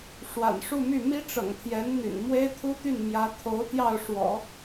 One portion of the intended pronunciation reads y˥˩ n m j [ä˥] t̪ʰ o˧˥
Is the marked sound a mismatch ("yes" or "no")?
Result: yes